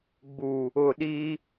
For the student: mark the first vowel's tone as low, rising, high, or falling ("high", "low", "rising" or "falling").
low